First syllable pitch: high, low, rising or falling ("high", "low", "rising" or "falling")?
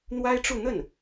high